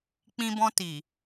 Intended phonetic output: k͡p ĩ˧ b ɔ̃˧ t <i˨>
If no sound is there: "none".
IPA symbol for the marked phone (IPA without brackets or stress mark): i˨